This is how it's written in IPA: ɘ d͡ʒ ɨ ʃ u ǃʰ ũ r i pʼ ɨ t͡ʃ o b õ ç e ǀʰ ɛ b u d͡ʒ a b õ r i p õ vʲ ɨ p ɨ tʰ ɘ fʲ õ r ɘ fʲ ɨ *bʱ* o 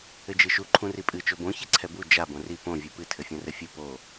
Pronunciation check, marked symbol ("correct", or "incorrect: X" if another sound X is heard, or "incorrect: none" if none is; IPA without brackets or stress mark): incorrect: p